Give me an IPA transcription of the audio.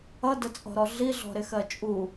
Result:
ʌdət͡sʼɔ̤ɾɔ ɮiɮɔ̤ɾɪxɜ t͡ʃʼu

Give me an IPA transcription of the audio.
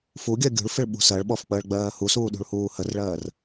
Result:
fuɡʲɜ ɡʲṳɭfɪɭɓṳ sɜɭɓɔfk͡pəːɭɡ͡bɜː husuːɗṳɭhuː hərɭɜːr

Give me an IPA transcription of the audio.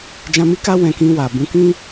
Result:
d͡ʒã˧mi˦ka˦ wɛ̃˧kĩ˧wa˨ bũ˨˦kĩ˦

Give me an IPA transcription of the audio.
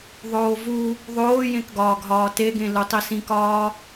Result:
ðˤoːvu | ðˤoːjẽkɡɒːɡ ɦɒːteɡẽ lutˤisĩkɒː

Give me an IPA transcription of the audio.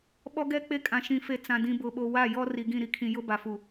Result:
ɓɔ˦ɡɛ˦ k͡pe˦kʼã˨ ʃĩ˨fe˨ t͡sã˨dĩ˨bʊ˨ɓo˨ wa˦˨jɔ˦ ri˨ɡĩ˦˨ ɾi˨kʰĩ˨jʊ˦ ba˨fu˨

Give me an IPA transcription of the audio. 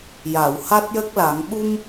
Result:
ja˨˩˨wha˦˥t̚jə˦˥k̚la˨˩˦ŋ ɓu˧m

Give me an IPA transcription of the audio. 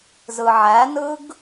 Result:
zɯʕænɯɡ

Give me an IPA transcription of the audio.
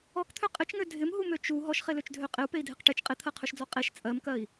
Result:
ɔkt̪ʰø qʼɪt͡ʃŋø dʱɪmɦumø t͡ʃu ɦɔʃχeløt͡ʃdʱø qʼɪu̯pei̯dʱɪq ʈet͡ʃ qʼɪt̪ʰɜqʰøʃd͡zɔ qʼeʃ t͡sʼɜmkɜi̯

